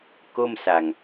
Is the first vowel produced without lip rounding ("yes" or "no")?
no